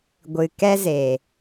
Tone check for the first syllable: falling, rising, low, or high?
low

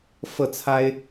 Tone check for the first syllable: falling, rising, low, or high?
falling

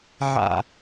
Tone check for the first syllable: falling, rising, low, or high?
low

